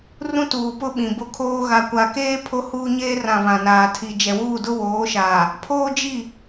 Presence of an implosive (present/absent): present